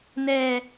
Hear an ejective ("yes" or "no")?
no